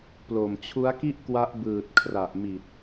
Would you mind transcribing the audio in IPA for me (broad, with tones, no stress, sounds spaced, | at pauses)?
p l o˨˩ m t͡ɕʰ u˦˥ a̯ k i˥˩ ʔ k w a˦˥ ʔ b ɯː˨˩ t̚ kʰ r a˨˩ ʔ m i˨˩ t̚